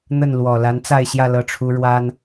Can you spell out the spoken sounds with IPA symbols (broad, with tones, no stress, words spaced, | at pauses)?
n̪ə˥˩nlwɔ˨˩ la˧˥nt͡sa˥˧ɪ̯ɕjä˥˧ lɤ˥˩ʈ͡ʂʰu˥ ɻwa˥n